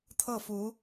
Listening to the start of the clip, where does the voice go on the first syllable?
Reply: falling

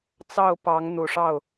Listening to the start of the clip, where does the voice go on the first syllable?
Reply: falling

